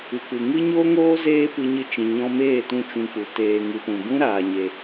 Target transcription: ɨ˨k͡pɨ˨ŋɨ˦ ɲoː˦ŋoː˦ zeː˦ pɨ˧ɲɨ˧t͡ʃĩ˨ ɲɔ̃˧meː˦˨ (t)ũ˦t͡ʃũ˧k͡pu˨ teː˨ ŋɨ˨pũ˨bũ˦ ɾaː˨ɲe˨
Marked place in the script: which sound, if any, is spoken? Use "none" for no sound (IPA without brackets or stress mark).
t